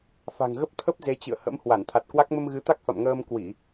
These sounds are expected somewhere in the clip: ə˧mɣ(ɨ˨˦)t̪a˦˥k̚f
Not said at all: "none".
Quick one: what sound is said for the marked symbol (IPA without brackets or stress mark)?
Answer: ɨ˨˦